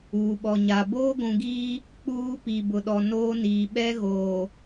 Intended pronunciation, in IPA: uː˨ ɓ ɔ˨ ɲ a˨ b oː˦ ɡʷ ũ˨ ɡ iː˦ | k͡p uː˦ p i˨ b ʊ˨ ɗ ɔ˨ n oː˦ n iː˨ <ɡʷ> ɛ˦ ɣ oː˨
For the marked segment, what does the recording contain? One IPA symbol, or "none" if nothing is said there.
ɓ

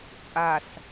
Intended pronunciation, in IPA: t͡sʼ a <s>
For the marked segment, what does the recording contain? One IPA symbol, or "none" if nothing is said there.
s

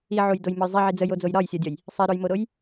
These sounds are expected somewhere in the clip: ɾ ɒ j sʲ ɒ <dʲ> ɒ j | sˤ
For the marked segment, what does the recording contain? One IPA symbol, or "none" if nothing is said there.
dʲ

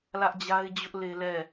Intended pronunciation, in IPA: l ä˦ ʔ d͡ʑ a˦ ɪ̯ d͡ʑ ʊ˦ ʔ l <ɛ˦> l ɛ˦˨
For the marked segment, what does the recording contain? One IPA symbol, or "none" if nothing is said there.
e˦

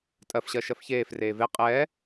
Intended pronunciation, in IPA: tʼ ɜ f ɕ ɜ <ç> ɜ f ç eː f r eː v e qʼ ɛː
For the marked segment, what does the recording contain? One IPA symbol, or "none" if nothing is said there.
ʃ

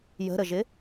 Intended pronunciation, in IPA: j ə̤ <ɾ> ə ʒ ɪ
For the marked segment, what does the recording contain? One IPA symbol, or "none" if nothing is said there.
ɾ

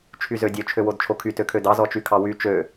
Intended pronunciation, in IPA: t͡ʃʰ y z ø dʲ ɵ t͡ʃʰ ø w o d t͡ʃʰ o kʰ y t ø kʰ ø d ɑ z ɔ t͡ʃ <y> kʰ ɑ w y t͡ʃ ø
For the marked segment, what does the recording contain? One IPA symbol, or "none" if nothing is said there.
y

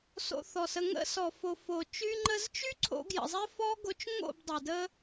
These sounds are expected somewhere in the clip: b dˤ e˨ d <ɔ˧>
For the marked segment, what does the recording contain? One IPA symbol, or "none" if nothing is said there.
ə˧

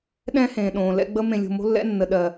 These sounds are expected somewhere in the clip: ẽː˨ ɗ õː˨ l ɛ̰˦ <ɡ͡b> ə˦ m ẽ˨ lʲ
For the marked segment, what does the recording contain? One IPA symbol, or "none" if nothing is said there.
ɡ͡b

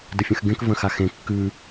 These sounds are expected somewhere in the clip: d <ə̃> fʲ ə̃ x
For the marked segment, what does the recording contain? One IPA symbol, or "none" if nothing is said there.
ə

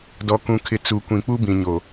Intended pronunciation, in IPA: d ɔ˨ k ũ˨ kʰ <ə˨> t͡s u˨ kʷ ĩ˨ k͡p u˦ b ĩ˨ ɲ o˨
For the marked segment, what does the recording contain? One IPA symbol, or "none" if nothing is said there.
ɪ˨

